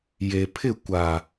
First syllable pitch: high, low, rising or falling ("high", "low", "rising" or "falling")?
low